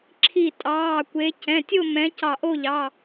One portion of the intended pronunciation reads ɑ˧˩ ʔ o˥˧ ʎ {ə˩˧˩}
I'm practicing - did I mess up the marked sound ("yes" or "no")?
yes